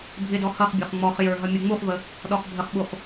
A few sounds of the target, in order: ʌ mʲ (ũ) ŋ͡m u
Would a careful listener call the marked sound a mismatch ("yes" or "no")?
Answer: yes